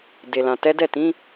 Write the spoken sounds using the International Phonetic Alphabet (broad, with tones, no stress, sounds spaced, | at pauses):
d e˨ l ã˨ t ɛ˨˦ d ɛ˦˨ t ĩ˨˦